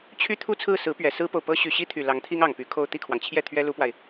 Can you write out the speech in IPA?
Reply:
t͡ɕʰy˥t̪ʰu˥t͡sʰɹ̩˥˩sɹ̩˧˥ pɥɛ˨˩sɹ̩˥po˨ʊ̯pɤ˥ ɕy˨˩ɕi˥t̪ʰy˨˩ lɑ˧˥ŋt̪ʰi˥ŋ ɑ˨˩ŋpy˧˥kʰo˥˧ʊ̯ t̪i˥˩kʰwɑ˩ŋt͡ɕʰjɛ˥˩ t̪ʰɥɛ˥lu˥pwa˨ɪ̯

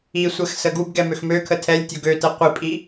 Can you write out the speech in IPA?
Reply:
isʷɛxsə ɡubɡɛmøx møkʰə tʰɛlʲtʲo ɡøtɛ qʷipʼi

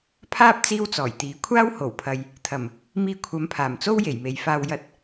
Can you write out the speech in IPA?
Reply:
pʰaː˥p̚ t͡siː˥wt͡sɔː˨˩jt̪iː˨˥ kʷʰaː˥who˨˩wpʰɐ˨j | t̪ʰɐ˨˩m | miː˧kʷʰɐ˨˧mpʰaː˨˩mt͡so˥w je˨˩jme˨jfaː˧w jɐ˧t̚

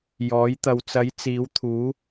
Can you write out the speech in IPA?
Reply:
jɔː˨˥j t̪ɐ˨wt͡sɐ˨˥j t͡siː˨˥wt̪ʰuː˨˥

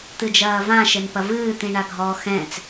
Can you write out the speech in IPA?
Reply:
t̪ɨd͡ʒɐːvã ʃɘnpɐvɨː t̪ĩɳaɡʱɔːxɛ̃t͡s

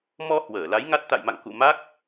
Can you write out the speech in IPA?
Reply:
mɔ˧ hwəː˧˩la˨˦jŋa˦˥t̚ t̪a̰˧˨jma̰˧˨ŋkṵ˧˨ ma˦˥k̚

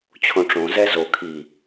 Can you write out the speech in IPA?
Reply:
t͡ɕʰõʈ͡ʂõzɛ zo kʰi

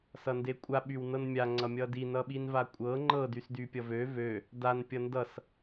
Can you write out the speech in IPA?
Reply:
sʌndekʷʼa ɓywnɤnmʲa ŋ͡ǀʌmʲʌdi nʌɓinvakʷʼɤ ŋ͡ǃɤ dysdypʲʌvø vø | dan pʲʌndʌs

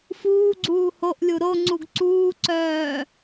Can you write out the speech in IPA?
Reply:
fuːɡ͡ǀuː hoʔlʲu ɾoŋ͡ǀuɡ ǀuːǀœː

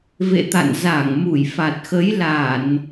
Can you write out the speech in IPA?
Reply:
vḛ˧˨ t̪a̰˧˨n za˧˩ŋmu˧˩jfa˨˩t̚xə˨˦j la˧˩˨n

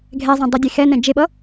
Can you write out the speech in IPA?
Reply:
ɡʱɛzˤɛ̃ dˤʌdʲexɛnɛ̃ d͡ʒeɓʌ

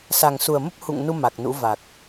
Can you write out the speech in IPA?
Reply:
sa˨˩ŋsu˨˩ə̯mə˦˥p̚ hṵ˧˨ŋnu˧ ma˨˩k̚nṵ˧˥va˨˩k̚

